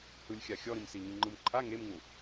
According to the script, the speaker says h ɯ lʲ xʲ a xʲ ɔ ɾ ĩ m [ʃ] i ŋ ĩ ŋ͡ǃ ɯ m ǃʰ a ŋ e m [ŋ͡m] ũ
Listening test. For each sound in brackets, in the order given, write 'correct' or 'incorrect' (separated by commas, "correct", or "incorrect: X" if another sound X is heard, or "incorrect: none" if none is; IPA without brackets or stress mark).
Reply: incorrect: s, incorrect: ŋ